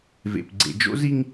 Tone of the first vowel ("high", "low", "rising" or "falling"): low